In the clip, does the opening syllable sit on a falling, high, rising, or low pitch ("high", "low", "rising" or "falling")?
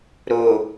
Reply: low